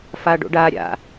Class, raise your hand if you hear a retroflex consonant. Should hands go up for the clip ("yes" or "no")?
yes